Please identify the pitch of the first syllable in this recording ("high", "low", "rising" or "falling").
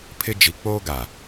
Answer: high